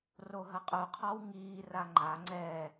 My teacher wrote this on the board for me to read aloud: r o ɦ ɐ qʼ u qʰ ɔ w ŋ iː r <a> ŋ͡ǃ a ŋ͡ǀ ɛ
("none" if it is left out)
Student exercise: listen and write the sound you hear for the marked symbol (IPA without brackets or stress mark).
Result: a